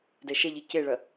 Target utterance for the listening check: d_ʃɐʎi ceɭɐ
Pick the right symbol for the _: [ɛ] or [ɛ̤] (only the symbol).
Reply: ɛ